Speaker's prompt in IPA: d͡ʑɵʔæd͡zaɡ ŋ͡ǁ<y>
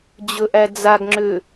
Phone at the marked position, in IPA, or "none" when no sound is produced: ʏ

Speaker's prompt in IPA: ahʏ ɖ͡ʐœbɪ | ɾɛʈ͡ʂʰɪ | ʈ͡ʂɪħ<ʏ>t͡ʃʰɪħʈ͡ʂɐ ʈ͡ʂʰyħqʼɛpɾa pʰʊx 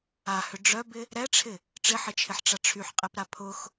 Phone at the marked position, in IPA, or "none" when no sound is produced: ɪ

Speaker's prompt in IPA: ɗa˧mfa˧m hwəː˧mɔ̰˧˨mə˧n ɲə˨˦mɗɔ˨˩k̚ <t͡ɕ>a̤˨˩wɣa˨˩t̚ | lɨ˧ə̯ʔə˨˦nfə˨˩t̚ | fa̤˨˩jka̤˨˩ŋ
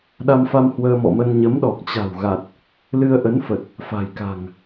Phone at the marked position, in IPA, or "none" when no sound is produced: t͡ɕ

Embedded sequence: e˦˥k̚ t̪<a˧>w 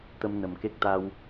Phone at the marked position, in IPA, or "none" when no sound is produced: a˧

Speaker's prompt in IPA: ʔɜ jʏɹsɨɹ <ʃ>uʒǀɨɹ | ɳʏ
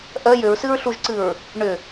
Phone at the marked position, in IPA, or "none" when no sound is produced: ɬ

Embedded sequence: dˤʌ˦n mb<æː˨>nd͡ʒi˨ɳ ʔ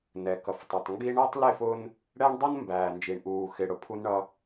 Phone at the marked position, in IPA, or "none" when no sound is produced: æː˨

